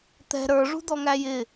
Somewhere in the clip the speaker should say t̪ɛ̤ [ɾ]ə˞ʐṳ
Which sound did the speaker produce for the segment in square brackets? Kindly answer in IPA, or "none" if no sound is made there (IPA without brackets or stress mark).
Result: ɾ